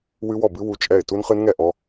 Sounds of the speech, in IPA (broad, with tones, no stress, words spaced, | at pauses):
wɨ˦˥wɔ˥˩bɨ˦˥ wu˦˥t͡ʃʼɛ˥˩ɪ̯ tu˦˥nχɨ˦˥nŋɛ˥˩ ʔɔ˦˥